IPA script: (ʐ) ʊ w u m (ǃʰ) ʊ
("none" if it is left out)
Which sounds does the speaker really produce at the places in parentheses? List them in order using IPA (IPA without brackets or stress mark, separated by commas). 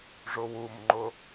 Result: ʐ, ŋ͡ǃ